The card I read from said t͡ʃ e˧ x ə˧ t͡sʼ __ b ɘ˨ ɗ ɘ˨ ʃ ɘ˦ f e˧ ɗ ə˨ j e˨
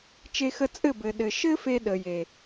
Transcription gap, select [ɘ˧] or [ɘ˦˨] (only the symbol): ɘ˦˨